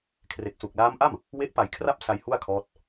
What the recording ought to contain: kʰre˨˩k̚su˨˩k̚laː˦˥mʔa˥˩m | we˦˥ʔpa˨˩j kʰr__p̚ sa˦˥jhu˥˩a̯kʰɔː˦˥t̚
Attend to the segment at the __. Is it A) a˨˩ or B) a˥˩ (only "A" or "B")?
B